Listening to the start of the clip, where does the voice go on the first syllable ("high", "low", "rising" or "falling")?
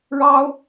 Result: high